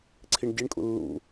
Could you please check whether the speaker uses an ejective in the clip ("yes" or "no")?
yes